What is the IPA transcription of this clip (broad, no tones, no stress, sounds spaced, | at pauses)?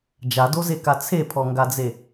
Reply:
d͡ʒ a d o z e k a t͡sʰ e pʰ ɔ ŋ ɡ a d͡z e